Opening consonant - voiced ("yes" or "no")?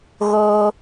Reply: yes